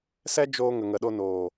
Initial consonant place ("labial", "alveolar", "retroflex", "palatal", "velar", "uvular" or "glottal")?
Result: alveolar